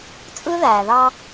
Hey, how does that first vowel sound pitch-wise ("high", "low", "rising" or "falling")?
high